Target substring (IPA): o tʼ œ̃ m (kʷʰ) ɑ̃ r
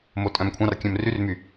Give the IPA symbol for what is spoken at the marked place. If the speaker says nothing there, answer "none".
kʷʰ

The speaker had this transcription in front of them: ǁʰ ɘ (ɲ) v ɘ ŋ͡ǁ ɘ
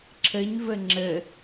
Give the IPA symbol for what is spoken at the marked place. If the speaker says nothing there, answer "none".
ɲ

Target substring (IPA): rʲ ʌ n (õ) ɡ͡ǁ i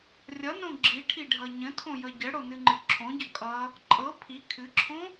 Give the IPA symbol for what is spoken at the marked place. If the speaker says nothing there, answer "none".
õ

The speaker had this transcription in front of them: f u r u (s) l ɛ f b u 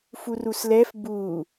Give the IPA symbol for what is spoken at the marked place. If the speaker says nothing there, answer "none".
s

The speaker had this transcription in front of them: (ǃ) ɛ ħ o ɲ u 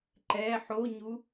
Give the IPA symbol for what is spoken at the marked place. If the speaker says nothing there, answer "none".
ǃ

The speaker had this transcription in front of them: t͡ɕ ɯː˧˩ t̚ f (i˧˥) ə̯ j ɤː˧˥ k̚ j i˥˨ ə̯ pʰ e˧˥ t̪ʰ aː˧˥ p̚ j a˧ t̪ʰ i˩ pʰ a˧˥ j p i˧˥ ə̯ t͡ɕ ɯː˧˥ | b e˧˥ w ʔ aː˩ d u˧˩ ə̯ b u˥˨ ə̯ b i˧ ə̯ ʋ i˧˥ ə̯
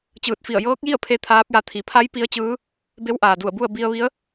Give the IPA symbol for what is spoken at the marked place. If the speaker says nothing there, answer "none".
i˧˩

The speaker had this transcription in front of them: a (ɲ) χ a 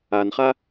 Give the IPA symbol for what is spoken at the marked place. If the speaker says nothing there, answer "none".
n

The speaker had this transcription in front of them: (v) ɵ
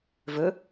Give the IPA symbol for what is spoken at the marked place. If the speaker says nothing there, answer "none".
v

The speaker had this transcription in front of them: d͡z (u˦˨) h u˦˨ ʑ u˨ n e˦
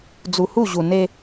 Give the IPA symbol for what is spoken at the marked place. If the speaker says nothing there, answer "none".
u˨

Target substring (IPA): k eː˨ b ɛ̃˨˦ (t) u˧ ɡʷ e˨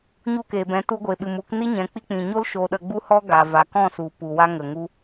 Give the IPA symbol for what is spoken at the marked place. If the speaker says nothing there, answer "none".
t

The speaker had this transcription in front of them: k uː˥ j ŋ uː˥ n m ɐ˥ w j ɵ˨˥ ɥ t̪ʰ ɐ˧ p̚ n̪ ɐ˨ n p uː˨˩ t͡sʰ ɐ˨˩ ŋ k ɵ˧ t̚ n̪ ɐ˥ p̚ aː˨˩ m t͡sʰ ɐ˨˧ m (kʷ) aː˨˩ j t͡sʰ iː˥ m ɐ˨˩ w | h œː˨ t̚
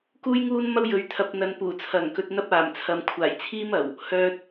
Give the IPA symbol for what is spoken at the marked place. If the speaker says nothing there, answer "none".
kʷʰ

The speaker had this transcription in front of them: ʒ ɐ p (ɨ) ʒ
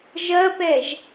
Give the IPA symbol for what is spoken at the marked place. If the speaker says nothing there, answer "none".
ɛ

